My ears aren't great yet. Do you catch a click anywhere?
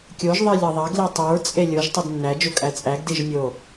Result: no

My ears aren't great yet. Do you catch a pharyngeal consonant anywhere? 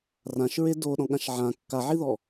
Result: yes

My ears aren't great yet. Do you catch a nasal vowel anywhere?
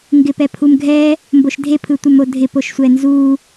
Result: no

